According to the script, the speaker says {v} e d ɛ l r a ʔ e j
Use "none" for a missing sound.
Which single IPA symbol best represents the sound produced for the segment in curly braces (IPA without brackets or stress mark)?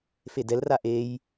f